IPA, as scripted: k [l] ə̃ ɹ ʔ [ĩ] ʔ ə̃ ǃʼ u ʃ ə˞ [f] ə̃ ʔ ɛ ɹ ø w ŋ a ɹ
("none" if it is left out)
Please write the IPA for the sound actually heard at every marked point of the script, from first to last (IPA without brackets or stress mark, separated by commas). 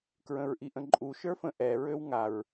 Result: ɹ, i, f